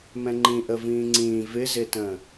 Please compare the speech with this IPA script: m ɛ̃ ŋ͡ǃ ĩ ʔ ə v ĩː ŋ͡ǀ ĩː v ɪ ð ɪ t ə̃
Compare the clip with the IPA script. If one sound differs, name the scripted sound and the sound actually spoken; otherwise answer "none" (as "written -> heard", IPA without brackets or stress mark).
ð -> z